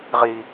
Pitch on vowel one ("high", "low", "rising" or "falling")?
low